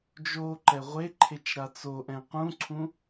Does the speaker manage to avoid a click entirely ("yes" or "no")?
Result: no